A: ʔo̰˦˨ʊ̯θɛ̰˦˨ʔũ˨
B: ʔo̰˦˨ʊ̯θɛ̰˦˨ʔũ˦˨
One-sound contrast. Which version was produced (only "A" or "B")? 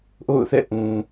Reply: A